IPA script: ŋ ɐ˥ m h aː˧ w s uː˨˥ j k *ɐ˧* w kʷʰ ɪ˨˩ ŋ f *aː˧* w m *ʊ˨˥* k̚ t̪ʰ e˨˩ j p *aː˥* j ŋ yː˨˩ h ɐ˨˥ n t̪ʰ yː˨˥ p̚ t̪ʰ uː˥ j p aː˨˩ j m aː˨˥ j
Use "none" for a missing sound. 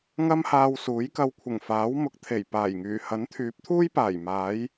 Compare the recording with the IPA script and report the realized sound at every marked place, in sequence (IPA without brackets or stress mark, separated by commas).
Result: ɐ˧, aː˨˥, ʊ˨˥, aː˨˩